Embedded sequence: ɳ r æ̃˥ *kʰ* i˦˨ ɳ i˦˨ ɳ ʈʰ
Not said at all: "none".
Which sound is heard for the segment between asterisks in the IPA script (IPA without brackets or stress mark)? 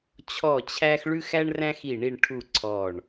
x